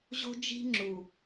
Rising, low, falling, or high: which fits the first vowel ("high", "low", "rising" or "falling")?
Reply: high